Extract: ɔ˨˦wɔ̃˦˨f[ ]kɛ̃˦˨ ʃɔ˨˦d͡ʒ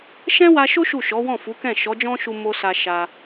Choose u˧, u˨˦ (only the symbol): u˨˦